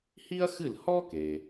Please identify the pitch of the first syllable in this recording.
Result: high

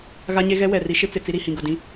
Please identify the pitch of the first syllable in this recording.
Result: high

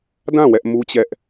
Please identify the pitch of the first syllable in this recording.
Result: falling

